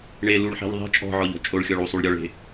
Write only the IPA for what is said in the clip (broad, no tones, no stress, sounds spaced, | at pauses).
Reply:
ɳ e l u ɭ ħ e̤ ʎ ðˤ e̤ t͡ʃʼ ɔ̤ ʕ ɔ ʎ ɔ̤ t͡ʃʼ o ɭ xʲ ɔ ɭ u sˤ u ɭ ɾʲ ɔ ɭ e̤